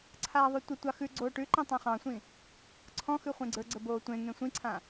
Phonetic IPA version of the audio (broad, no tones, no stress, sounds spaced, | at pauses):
ǀʰ aː ðˤ ʉ tʷ ə tʷ ɑ x ʉ ɡ͡ǀ oː ʈ ʉ ǃ ĩ tˤ ã χ ɑ̃ sʷ ĩ | ǀʰ ɔ̃ x ʉ χʷ ẽ ɡ͡ǀ ə˞ ɡ͡ǀ ə b oː tʷ ẽ ŋ ẽ sʷ ĩ ǀʰ ã